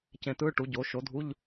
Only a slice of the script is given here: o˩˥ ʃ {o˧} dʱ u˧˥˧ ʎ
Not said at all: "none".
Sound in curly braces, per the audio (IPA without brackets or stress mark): o˩˥